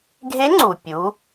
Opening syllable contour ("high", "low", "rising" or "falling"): rising